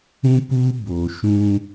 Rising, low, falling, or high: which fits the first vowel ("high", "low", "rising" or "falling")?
high